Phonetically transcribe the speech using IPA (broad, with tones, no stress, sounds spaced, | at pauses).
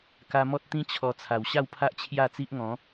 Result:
k a˧ m ɔ˦ t̚ t̪ ĩ˦ t͡ɕʰ ɔ˧ t͡sʰ a˨˩ w ɕ a˥˧ w pʰ a˦ ʔ t͡ɕʰ j a˥˧ t͡s i˦ ʔ ŋ ɔ̃˨˦